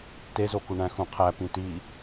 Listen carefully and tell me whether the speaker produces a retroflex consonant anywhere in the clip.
yes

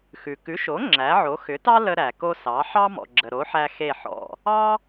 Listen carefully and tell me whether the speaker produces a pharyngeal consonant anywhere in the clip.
yes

